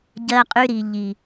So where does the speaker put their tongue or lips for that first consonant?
palate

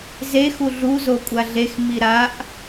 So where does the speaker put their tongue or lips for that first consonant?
tongue tip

